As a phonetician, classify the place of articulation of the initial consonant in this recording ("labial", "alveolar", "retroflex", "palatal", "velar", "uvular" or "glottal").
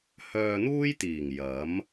glottal